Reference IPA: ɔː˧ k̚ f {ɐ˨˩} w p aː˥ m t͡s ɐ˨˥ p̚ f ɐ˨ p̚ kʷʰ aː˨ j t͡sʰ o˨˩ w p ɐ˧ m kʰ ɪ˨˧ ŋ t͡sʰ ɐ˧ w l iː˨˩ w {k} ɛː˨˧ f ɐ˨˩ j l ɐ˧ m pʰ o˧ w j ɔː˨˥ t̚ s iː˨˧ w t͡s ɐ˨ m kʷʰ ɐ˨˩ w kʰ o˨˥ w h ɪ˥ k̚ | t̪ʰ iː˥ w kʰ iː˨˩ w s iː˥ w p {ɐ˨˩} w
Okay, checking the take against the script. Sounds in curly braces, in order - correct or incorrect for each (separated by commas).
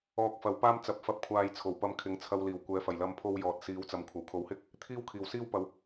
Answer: incorrect, incorrect, incorrect